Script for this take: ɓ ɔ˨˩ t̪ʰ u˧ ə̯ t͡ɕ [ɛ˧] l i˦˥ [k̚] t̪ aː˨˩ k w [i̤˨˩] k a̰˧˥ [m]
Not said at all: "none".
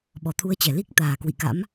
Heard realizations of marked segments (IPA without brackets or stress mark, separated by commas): ɛ˧˩, k̚, ḭ˧˨, m